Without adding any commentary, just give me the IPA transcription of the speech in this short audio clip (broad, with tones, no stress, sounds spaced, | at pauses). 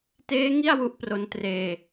t eː˦˥ ŋ i˥˩ a̯ w u˦˥ ʔ p r o˧ n t r eː˧